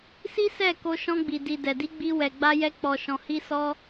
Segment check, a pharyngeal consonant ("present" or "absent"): absent